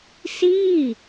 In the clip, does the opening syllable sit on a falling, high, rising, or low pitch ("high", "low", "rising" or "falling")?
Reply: falling